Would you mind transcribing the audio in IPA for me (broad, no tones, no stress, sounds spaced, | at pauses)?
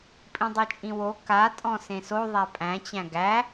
pʼ ĩ dˤ ɛ t͡ʃʼ ĩ w o k a tʼ ɔ̃ s ẽ s o ðˤ æ pʼ æ̃ t͡ɕ æ̃ ɡ æ